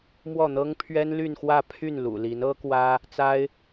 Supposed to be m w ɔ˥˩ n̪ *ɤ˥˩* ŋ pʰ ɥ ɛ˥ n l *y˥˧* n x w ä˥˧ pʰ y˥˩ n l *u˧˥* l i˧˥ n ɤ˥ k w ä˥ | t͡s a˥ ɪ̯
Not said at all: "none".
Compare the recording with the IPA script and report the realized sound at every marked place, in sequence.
ɤ˥, y˥˧, ṵ˨˩

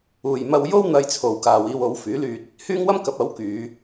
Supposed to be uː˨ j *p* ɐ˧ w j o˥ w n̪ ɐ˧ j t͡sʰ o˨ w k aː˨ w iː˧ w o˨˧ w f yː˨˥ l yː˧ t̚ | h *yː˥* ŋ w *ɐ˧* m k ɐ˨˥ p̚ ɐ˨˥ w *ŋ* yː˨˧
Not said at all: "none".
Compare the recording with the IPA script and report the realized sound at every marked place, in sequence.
m, yː˥, ɐ˥, k

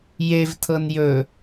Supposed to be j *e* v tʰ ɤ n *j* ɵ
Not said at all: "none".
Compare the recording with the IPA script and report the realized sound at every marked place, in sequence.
e, j

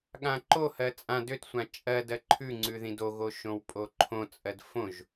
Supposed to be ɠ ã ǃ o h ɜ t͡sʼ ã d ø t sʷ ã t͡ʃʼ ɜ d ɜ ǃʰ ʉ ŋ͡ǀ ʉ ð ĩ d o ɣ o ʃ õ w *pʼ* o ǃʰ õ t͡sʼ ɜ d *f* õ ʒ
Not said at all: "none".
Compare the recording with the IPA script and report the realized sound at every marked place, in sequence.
pʼ, f

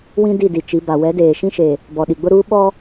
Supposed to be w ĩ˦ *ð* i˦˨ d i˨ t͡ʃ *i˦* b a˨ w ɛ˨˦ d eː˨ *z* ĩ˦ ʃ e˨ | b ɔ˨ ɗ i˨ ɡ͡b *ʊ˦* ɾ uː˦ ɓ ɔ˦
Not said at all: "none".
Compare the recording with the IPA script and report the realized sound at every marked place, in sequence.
d, i˨˦, ʃ, ʊ˦

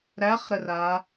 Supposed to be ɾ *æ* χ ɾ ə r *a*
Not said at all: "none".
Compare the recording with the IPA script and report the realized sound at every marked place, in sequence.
æ, a

